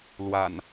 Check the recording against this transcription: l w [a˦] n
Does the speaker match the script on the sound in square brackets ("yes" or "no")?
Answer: no